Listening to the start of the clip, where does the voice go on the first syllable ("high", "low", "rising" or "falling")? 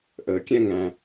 low